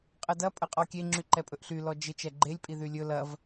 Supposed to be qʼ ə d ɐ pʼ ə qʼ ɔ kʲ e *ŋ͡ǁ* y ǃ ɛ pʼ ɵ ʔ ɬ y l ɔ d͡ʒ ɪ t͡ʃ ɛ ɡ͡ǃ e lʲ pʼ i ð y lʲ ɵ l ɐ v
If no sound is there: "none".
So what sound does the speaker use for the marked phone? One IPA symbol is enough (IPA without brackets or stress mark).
ŋ͡ǁ